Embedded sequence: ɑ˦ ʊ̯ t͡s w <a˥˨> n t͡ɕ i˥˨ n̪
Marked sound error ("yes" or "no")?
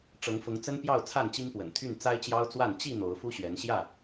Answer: no